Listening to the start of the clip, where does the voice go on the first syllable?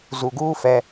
low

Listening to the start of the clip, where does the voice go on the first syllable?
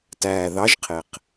low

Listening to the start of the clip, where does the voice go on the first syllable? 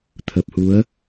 low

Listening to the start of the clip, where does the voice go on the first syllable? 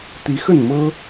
rising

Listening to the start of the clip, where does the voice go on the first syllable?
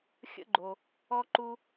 high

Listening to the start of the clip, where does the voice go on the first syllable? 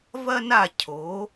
high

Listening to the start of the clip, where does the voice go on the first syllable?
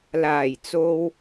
low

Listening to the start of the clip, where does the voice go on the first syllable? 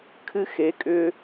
high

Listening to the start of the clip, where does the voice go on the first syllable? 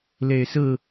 low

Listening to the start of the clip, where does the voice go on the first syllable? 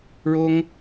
high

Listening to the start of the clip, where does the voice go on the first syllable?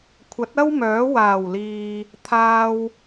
rising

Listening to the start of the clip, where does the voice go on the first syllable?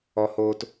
low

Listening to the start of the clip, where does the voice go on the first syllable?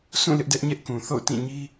falling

